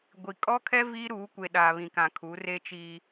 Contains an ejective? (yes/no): yes